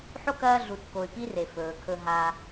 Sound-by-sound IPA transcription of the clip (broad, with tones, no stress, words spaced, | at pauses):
ħo˥kɐː˦ ɮu˨tko˨y̯ pi˦re˩fɵː˩kʰɵ˨ ɦa˨